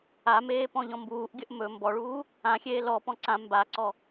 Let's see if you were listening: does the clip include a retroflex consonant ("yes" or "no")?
yes